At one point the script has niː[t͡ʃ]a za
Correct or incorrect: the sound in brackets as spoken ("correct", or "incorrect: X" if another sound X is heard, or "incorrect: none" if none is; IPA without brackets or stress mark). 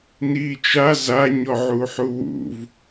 correct